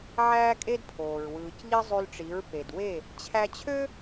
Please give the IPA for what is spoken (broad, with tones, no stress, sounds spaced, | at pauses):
ʕ æː˦ kʼ e˦ d pʰ oː˨ ɹ w ɯː˨ c ʎ i˦ zˤ y˧ l ʈ͡ʂ i˨˦ ɹ p e˨ d w e˦˨ | t͡ɕʰ æ˧ t͡ɕʰ ø˦